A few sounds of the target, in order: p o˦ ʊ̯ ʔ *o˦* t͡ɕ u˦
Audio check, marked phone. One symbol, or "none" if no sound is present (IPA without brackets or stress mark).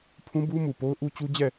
u˦